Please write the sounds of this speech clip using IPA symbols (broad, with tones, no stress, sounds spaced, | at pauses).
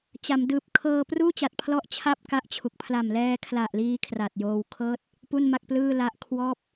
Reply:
t͡ɕ a˩˦ m d ɯː˨˩ p̚ kʰ ɤː˧ p r uː˥˩ t͡ɕ a˨˩ t̚ pʰ l ɔ˥˩ ʔ t͡ɕʰ a˥˩ p̚ k a˥˩ ʔ t͡ɕʰ u˨˩ k̚ pʰ l a˨˩ m l ɛː˧ kʰ l a˨˩ ʔ l iː˧ kʰ r a˨˩ t̚ j oː˧ w kʰ ɤː˥˩ t̚ | p u˥˩ n m a˥˩ k̚ p l ɯː˥˩ l a˦˥ ʔ kʰ w ɔː˥˩ p̚